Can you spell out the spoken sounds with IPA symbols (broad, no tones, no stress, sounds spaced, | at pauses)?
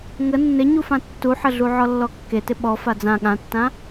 ŋ ə nː ɪ ɲ u f ã tː u ħ ə ɮ u ʕ ɔ lː ɔ kː e t ɪ ɓ ɔ f a d͡z ã ɠ ã tː ã